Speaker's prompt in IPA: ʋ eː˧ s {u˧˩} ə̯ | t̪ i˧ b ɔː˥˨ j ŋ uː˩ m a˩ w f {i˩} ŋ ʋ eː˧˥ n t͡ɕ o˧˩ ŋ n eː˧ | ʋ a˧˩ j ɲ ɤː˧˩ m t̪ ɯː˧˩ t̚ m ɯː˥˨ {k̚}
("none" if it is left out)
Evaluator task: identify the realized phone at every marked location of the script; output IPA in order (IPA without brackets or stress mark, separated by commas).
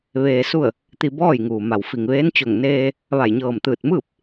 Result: u˥˨, i˩, p̚